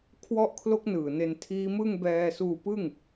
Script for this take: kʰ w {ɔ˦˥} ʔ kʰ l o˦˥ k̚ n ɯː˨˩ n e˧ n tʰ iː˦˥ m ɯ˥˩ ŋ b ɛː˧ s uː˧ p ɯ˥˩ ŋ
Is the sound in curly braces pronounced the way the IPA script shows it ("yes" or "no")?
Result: yes